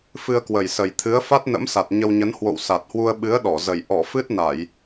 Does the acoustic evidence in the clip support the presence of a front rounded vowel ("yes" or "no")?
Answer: no